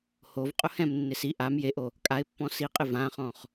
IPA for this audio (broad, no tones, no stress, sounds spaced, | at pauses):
h o v qʼ ʊ h ɛ̃ m nː ɪ s i ʔ a m j e ʔ o | kʼ a ɪ̯ pː ɔ̃ s i qʼ ɪ v ã χ ɔ̃ χ